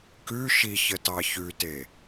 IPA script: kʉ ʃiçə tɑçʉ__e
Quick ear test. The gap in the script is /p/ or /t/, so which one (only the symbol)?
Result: t